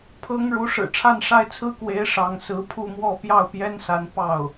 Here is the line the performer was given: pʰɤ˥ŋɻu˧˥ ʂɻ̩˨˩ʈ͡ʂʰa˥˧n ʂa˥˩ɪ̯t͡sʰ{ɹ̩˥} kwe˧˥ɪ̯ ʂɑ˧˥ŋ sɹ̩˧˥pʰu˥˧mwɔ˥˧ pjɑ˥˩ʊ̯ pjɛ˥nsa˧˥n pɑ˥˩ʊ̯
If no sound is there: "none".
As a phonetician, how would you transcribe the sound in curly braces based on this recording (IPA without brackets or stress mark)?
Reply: ɹ̩˥